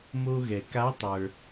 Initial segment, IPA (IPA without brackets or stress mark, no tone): m